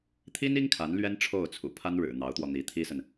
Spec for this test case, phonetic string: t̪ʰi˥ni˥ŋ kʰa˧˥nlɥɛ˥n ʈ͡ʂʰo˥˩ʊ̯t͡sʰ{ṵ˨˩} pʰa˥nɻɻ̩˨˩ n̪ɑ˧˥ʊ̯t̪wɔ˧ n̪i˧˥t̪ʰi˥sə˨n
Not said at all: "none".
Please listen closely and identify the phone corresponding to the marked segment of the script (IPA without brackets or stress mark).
ṵ˨˩